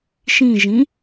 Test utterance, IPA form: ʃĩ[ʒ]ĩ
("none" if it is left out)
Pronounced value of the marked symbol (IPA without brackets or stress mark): ʒ